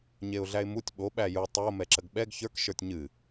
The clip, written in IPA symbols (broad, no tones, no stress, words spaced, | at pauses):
ɲeʊ̯ɮæɪ̯mutʲ ɓo ɓæju tˤo mɛǁəɡɓɛɡ çə˞k ʃə˞tʲɲɨ